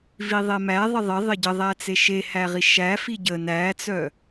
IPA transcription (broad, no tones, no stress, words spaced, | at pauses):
viðˤemæ ðˤɪðˤɪ ðˤɪɟəðˤæt͡se ʃehæʁi ʃæ fiɟə næt͡sœ